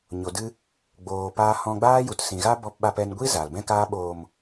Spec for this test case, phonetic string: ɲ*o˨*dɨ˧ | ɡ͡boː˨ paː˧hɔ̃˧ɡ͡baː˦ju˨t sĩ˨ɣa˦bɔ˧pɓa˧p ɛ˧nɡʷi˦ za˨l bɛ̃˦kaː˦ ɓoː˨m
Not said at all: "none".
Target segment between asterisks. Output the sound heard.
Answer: o˨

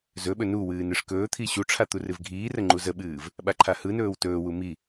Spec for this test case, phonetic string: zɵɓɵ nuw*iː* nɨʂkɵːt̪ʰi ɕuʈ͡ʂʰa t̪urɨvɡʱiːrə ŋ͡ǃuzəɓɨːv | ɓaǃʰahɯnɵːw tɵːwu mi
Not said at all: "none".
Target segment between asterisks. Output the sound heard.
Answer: ɨː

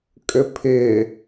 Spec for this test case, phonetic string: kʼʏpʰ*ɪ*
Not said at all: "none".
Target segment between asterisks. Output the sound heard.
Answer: ɪ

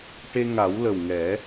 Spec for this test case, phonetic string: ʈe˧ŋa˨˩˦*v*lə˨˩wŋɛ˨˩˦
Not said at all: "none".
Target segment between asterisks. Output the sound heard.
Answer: w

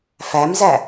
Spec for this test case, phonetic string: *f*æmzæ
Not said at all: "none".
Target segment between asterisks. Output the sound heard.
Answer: f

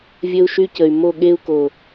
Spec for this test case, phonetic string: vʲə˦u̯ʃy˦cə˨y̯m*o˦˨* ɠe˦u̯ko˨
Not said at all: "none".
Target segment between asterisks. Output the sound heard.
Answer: o˦˨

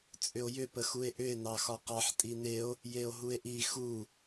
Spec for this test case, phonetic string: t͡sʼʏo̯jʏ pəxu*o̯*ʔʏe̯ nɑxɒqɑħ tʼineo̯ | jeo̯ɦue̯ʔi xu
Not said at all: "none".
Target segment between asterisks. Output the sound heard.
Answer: e̯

